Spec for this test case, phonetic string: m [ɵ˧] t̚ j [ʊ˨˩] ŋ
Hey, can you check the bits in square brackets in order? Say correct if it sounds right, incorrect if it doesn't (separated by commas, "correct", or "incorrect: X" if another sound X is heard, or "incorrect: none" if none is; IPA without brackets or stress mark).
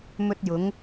correct, incorrect: ʊ˨˧